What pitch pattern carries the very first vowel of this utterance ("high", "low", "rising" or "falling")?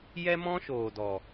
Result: high